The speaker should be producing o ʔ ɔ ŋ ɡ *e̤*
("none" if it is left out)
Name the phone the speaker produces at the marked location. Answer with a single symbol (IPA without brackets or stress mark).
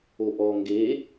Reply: e